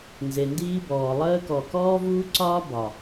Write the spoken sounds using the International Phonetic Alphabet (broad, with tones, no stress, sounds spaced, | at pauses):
n z e˨ n d iː˦ b ɔː˨ lˠ əː˦ k ɔ˨ k ɔː˦ v uː˦ ǀ ɒː˦ b ɒ˨